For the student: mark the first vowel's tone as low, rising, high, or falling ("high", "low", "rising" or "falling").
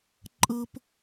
high